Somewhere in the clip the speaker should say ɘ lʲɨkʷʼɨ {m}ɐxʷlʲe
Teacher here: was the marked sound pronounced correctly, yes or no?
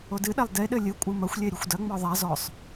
yes